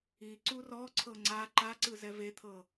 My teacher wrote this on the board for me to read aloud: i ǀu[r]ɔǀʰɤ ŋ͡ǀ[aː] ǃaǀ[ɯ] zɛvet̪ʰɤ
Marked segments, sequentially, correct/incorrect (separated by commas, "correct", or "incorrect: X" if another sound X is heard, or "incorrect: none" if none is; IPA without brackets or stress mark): correct, incorrect: a, correct